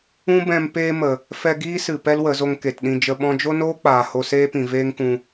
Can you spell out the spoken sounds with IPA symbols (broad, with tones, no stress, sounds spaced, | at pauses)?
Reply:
ũ˦ b ɛ̃˧ m p eː˧ m ə˨ | f ɛ˧ ɡ iː˦ s ɨ˨ p ɛ˦ l w ə˨˦ z o˧ ŋ k e˨ t ɗ ĩ˧ d͡ʒ ə˧ ɓ ɔ̃˧ d͡ʒ o˦ n oː˦ k͡p aː˨ h o˧ s eː˦ p ĩ˨ v eː˦ ŋ k ũ˧